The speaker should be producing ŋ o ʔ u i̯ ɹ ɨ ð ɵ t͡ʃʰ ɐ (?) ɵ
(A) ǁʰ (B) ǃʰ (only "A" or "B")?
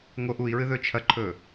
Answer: B